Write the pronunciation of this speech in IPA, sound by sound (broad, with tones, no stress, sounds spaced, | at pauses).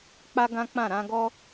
k͡p a˦ ɡ ã˦ k͡p ã˦˨ ɾ ã˧ ɡ ɔ˦